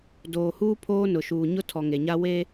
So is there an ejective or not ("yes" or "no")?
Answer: no